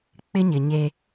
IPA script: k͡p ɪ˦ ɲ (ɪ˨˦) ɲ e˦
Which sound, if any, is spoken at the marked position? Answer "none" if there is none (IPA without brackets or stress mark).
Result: ɪ˨